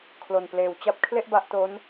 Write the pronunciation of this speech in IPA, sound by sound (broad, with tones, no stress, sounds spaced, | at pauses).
kʰ l o˨˩ n p l eː˨˩ w t͡ɕ a˦˥ p̚ kʰ l e˥˩ ʔ b a˦˥ ʔ t o˦˥ n